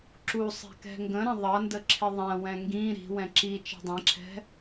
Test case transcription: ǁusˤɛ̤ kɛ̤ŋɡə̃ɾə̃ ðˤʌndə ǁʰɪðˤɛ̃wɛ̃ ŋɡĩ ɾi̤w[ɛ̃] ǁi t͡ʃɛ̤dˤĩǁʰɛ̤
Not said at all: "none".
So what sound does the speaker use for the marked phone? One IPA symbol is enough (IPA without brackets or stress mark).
ɛ̃